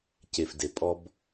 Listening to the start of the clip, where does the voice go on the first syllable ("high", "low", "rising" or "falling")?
low